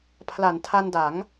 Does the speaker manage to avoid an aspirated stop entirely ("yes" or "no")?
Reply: no